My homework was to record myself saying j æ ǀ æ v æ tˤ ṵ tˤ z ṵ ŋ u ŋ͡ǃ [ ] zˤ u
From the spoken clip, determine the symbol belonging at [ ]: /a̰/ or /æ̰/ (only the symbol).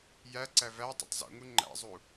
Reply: æ̰